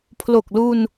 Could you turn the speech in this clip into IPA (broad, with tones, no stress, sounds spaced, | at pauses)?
pʰ l o˨˩ k̚ l u˧ n